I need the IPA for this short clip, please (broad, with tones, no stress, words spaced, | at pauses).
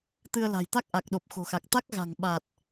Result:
t̪ɨ˧ə̯la̤˨˩j t̪a˦˥k̚ʔa˨˩k̚ ɗo˨˩p̚xo̤˨˩xa˨˩k̚ t̪a˦˥k̚ɣa̤˨˩ŋɓa˨˩t̚